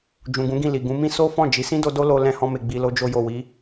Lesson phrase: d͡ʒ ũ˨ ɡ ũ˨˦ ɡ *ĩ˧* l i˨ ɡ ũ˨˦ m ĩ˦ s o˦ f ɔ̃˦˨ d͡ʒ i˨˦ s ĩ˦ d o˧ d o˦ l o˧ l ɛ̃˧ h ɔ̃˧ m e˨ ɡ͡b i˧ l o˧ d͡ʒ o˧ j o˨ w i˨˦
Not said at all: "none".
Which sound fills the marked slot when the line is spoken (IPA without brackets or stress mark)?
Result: ĩ˦˨